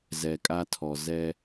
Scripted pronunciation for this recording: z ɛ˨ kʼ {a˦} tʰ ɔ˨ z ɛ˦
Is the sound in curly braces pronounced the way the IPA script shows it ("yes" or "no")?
yes